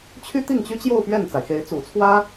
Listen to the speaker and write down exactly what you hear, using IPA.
t͡ɕʰ y˥ t̪ i˥˩ ŋ t͡ɕ y˥ t͡ɕ j o˥˧ ʊ̯ p ɥ ɛ˥˩ n t͡s a˩ ɪ̯ x e˧˥ ɪ̯ t͡s ṵ˨˩ t͡sʰ w ä˥

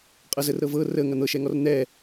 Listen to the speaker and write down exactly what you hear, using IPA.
qʼ ɤ z ə r ɾ ɤ v ɤ r ə ŋ ɐ n̪ ɤ ʃ ɛ ŋ ɔ r n̪ ɛ

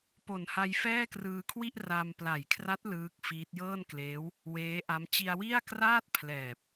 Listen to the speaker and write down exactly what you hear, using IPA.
p o˨˩ n h a˧ j f ɛː˥˩ k r ɯː˧ kʰ w i˥˩ ʔ r a˧ m p l a˨˩ j kʰ r a˦˥ t̚ l ɯː˦˥ k̚ f iː˦˥ t̚ j ɤː˥˩ n k l eː˦˥ w | w eː˦˥ ʔ a˦˥ m t͡ɕ i˧ a̯ w i˥˩ a̯ k r aː˥˩ t̚ pʰ l ɛː˨˩ p̚

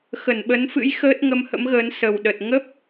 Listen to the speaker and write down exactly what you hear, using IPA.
x ə˧˩ n ɓ ə˨˦ n f ɨ̰˧˥ j x əː˦˥ t̚ ŋ ə˧ m h ə̰˧˥ m ɣ əː˨˦ n s ə˨˩ w ɗ ə˨˩ t̚ ŋ ə˦˥ p̚

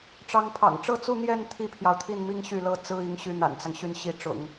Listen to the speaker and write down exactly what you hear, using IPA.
ʈ͡ʂ ɑ˧˥ ŋ pʰ ɑ̰˨˩ ŋ ʈ͡ʂ ɤ˥˧ t͡s u˥˧ n̪ j ɛ˥˩ n t̪ʰ i˥ pʰ j ɑ˨ ʊ̯ t̪ʰ i˥˩ n m i˥ ŋ ɕ y˥˩ l ɤ˥ t͡s ɹ̩˥ i˧˥ ŋ ɕ y˧˥ n̪ a̰˨˩ n t͡s ɑ˦ ŋ ɕ y˥˩ n ɕ i˧˥ ʈ͡ʂ ʊ̰˨˩˦ ŋ

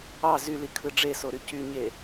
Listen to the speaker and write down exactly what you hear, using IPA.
ɑ z y l i kʰ ɯ ɖ͡ʐ e s o ɾ y c y ɲ e

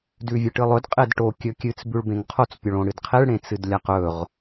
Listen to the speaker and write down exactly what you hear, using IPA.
d ʉ vʲ ɨ ʈ ɨ lˠ ɵ d qʼ e d ʈ o kʲ ɵ kʲ ɨ t͡s b ʉ ɭ b ẽ ŋ qʰ o t͡s pʲ ɵ ɭ õ ɽ ɨ d qʰ e ɭ ɽ ẽ t͡s ɨ d lʲ a q ɵ ʁ

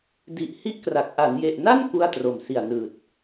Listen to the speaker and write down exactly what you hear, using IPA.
d i˨˩ ʔ h i˥˩ ʔ k r a˨˩ k̚ ʔ a˩˦ n j e˨˩ ʔ n a˥˩ n k u˥˩ a̯ t r o˨˩ m s i˨˩ a̯ n ɯː˨˩ t̚

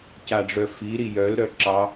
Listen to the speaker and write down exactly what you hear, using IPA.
c a ɖ͡ʐ œ f i ɾ i j œ l ɾ œ ǁ ɑ

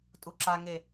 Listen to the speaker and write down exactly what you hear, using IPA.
tʼ u ǁ a ŋ e

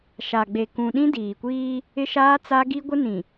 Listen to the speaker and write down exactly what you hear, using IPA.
ʃ a˨ ɡ͡b e˨ k ũ˨ ɗ ĩ˦ d iː˨ kʷ iː˦ | ɪ˦ ʃ aː˦ t͡s a˦ ɡ i˦ ɡʷ ɪ˦ n ĩ˨

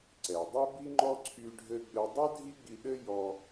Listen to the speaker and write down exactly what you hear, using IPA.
ǀ ɛ˩ dˤ ɛ˥ b i˥ ŋ͡ǃ ɔ˥ ǀʰ y˧ ɖʱ ɘ˧ ɡ͡b ɘ˧ dˤ ɘ˥ dʱ i˥ ɡ͡b i˧ ɗ ɘ˥ j ɔ˧

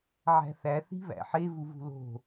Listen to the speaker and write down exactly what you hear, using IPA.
ʕ æ̤ θ æ θ i̤ β æ̰ ħ e v u v ṳ l o̤

